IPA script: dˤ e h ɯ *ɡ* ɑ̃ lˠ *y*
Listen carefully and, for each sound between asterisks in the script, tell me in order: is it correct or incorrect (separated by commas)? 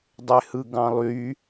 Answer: correct, correct